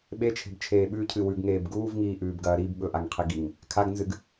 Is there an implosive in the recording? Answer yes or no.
yes